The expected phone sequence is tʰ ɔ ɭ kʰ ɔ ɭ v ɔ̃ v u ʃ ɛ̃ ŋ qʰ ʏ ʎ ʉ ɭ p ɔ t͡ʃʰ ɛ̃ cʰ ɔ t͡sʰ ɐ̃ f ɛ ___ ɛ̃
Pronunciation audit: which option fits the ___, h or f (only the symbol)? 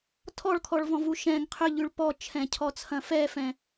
f